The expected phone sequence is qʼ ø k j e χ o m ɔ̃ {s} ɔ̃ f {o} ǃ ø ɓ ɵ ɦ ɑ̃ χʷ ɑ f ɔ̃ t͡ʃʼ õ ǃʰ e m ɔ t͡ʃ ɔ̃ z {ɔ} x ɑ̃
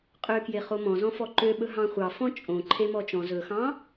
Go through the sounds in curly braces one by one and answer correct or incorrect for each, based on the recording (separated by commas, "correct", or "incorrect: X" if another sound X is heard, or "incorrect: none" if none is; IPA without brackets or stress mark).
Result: incorrect: z, incorrect: ɔ, incorrect: ɵ